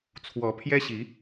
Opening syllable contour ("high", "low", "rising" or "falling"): rising